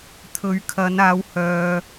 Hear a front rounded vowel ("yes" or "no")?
yes